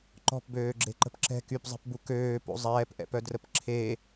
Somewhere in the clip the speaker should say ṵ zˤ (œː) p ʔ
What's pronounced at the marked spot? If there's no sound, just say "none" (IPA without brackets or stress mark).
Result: ɛː